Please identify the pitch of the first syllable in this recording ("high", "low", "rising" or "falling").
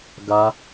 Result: high